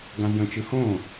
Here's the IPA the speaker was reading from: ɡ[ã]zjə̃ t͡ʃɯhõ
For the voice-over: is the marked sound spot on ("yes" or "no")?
yes